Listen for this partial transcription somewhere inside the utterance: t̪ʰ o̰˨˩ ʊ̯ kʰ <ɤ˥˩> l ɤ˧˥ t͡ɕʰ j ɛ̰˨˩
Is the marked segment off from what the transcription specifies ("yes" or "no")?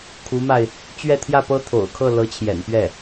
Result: no